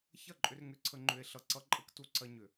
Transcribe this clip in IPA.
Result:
ç ɐ˦˨ ǃʼ ʏ˧ r ŋ ʏ˧ ǀʰ ə˧ ŋ͡ǃ ʏ˧ e̯ ɬ ʌ˧ ǀ ʌ˦ ǃʼ ə˦ k t u˧ ǀ ɐ˧ ɲ ʏ˨

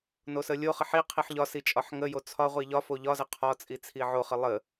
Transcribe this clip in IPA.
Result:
n o s ə lʲ o χ ə ħ i qʰ i ħ ʎ ɒ s i t͡ʃʼ ɒ ħ ŋ ə j o t͡sʰ ɒ ʁʷ i ʎ ɒ f o ʎ ɒ z ə qʰ ɒ t͡sʼ i t͡sʰ i ʕ o χ ə lˠ ə

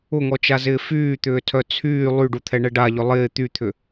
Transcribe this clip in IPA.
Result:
ʊ ŋ ɔ t͡ʃ a z ɪː f yː t̪ ʏː tʰ œ t͡sʰ yː lˠ y ɖ u t̪ʰ ɛ ɳ ɛ ɖ a ʎ ʏ lˠ ɪː t̪ y t̪ʰ ʏ

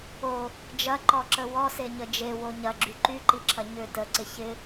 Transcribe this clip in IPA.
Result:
o | d͡ʒ ɐ ǃ ɔ ǁ ə w ɔ s e ɲ ə d͡ʒ e w o ɲ ɐ ɡ͡ǁ y ǃ y ǃ i ǁʰ ɐ ɲ ʏ t ə ǀ ɪ ç ɪ

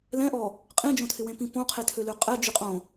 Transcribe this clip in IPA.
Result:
l ɛ̃ ʔ ɔ | qʼ ĩ d͡ʒ õ tʰ ɪ w ẽ p ĩ p õ qʰ e tʰ ø l ø qʼ ɛ d͡ʒ y qʼ õ

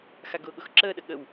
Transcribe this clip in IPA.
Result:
x a ɡ ʊː ɠ ʊ x ǁ əː ɗ ə ɠ ə w

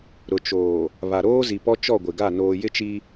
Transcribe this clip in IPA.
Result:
ɾ ʊ˨ t͡ʃ oː˨ | β a˨ ɾ oː˦ z i˨ p ɔ˦ t͡ʃ ɔ˦˨ ɡʷ ɪ˨ ɡ a˦˨ n oː˨ j ɪ˦ t͡ʃ i˦

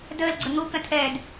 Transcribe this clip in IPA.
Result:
d əː l ɡ͡ǀ ə ŋ u k ə̃ tʰ ɛː d

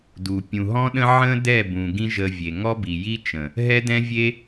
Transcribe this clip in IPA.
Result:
d u˨ pʲ ũ˨ ɦ ɔ̃˦ ɗ ə̃˦ ʕ ə̃˦ d ɛ˦˨ b ũ˨ ɡ ĩ˦ ʒ ə˧ vʲ e˨ ŋ ɔ˦ b i˨ j i˦ t͡ʃ ə̃˨ | ɦ ɛ˦ d ɛ̃˦ vʲ e˦

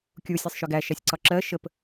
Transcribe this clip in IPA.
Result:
kʲ u sʲ æ sˤ ʃ ʏ ɡ æ ʃ æ sʲ ǀ ɒ ǁ ɜ ʃ ə p

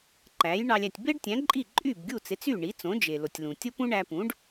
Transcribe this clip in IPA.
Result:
ǃ æ˩˥ j ɳ ɑ˧ lʲ æ˥˩ tʲ b e˥ ɖ tʲ æ̃˩˥ ǃʼ i˥˩ ǃʼ y˥˩ b ɡʲ u˥˩ t͡s e˩˥ t͡s y˥˩ ɳ i˩˥ t͡s õ˩˥ d͡ʒ e˩ l o˩ tʲ l ũ˩ tʲ o˥ p ũ˥ ɳ æ˧ p ũ˩˥ ɖ

